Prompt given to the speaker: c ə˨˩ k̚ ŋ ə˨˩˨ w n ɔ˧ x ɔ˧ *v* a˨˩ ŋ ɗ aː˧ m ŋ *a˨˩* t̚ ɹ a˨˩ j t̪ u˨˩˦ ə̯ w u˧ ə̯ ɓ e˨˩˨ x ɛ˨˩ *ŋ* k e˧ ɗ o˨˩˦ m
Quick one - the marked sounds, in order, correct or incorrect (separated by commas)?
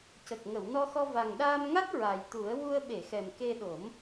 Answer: correct, incorrect, incorrect